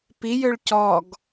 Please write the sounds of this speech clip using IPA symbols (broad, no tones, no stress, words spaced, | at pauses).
pijøɭ cɔɡ